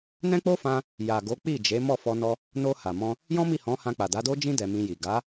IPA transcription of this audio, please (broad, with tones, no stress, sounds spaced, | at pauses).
n ɛ̃˦ k͡p o˦ f ã˧ | j a˨ ɡ o˨˦ k͡p i˦˨ d͡ʒ e˨˦ m ɔ˦˨ f ɔ˧ n ɔ˧ | n o˧ h a˨ m ɔ̃˧ | j ɔ̃˦ m i˦˨ h ɔ̃˨˦ h ã˧ k͡p a˨ d a˨˦ d o˦ d͡ʒ ĩ˦ d ɛ˧ m ĩ˧ j i˨ ɡ a˨˦